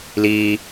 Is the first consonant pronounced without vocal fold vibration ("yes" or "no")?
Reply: no